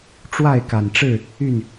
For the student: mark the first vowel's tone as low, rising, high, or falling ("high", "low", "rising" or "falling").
falling